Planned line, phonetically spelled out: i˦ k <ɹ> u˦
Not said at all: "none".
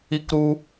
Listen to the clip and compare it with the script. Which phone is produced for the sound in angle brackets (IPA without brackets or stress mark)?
ɾ